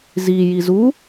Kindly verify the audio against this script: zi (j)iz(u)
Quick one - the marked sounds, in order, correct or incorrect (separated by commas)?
correct, correct